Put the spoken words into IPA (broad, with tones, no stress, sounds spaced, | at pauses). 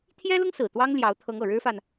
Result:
t̪ʰ j ɛ˥ l ʊ˥ ŋ s ɹ̩˨˩ t̪ w ɑ˥ ŋ l j ɑ˧˥ ʊ̯ t̪ʰ ɤ˧˥ ŋ ɤ˨˩ ɻ ɻ̩˥ f a˨ n